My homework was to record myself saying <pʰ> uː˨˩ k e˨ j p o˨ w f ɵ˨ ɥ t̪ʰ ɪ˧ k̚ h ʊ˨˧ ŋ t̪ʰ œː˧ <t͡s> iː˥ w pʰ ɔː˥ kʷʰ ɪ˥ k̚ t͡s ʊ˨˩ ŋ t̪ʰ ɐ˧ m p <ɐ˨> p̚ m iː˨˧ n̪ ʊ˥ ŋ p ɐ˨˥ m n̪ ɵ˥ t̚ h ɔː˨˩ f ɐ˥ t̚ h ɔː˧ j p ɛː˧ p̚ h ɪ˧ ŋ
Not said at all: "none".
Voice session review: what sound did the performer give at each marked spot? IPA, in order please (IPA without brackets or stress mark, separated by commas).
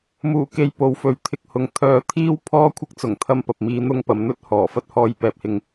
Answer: m, t̪ʰ, ɐ˨